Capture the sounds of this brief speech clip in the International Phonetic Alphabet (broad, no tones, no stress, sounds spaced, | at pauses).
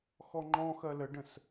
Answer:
x ɔ ŋ͡ǃ ɔ̃ x ɜ l ə ɖ ə̃ s